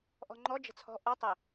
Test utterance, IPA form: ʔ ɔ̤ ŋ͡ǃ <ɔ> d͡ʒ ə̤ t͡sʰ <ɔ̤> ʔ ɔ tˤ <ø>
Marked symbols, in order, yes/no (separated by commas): yes, yes, no